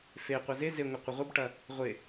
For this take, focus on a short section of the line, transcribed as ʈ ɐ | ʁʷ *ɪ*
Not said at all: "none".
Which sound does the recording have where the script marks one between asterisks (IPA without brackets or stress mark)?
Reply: ɪ